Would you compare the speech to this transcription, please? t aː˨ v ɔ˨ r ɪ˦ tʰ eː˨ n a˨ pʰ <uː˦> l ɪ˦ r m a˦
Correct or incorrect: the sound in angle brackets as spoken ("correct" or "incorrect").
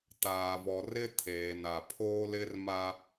incorrect